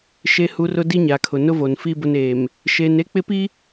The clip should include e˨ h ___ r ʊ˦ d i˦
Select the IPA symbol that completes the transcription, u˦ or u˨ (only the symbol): u˨